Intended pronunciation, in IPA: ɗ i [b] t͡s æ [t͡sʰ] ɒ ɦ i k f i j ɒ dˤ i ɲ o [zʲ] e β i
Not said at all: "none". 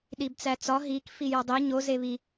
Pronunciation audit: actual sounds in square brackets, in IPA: b, t͡s, z

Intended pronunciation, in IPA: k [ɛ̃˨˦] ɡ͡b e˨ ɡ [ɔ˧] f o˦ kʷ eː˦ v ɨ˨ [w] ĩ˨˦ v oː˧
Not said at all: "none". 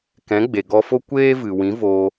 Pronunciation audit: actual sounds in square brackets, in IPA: ɛ̃˨˦, ɔ˧, w

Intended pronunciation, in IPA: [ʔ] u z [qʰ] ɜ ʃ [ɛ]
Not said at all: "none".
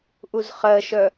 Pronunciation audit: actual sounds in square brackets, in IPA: ʔ, χ, œ

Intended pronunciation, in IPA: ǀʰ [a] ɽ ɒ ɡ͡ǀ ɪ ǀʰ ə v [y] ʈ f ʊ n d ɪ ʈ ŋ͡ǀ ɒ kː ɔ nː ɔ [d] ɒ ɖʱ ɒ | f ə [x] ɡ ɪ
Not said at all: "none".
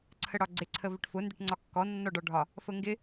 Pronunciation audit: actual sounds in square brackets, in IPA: ə, ɪ, ɖ, ŋ

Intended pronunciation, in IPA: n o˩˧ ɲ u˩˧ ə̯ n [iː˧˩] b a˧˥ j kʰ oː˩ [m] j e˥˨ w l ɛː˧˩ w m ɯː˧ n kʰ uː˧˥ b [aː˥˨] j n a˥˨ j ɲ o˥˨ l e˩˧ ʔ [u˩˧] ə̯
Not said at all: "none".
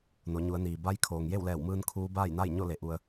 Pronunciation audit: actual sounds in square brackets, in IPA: iː˩, ŋ, aː˥˨, u˧

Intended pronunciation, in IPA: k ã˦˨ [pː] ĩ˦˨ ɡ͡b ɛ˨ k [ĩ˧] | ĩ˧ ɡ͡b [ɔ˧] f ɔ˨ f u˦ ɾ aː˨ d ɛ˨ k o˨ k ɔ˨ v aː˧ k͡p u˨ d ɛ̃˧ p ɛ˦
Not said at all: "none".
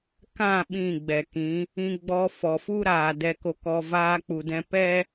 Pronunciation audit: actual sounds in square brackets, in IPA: ɓ, ĩ˨˦, ɔ˧

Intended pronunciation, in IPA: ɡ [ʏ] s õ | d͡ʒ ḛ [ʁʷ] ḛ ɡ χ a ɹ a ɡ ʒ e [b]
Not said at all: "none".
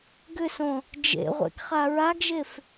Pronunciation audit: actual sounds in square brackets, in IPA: ʏ, ʁʷ, f

